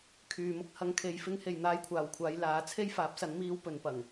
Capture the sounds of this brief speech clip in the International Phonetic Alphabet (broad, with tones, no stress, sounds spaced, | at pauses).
kʰ yː˨ m ʊ˧ k̚ h ɐ˨ ŋ kʰ e˨ j f ɪ˧ ŋ h e˨ j n̪ aː˧ j kʷʰ aː˨ w kʷʰ aː˨˧ j l aː˨˥ t͡sʰ e˥ j f aː˨˥ p̚ s ɐ˨˥ n m iː˧ w p ɵ˨˧ n p ɐ˨˩ ŋ